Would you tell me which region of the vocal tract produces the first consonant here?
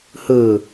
throat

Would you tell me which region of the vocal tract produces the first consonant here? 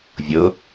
lips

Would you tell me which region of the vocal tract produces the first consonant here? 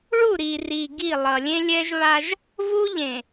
retroflex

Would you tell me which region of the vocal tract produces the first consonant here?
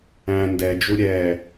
tongue tip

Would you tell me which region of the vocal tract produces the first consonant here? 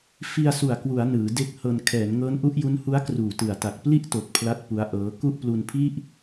lips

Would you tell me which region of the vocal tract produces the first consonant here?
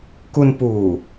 velum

